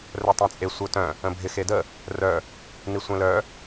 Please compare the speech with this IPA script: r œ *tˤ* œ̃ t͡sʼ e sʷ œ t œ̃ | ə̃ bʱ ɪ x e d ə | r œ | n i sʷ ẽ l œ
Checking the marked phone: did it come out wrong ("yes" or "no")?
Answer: no